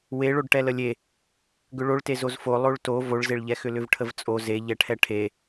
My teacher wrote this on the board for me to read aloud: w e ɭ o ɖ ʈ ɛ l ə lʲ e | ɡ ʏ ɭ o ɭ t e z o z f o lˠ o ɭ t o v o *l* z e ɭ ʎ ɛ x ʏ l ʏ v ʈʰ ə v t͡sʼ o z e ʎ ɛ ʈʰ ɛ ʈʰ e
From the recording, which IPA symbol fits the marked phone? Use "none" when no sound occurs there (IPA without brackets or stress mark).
ɭ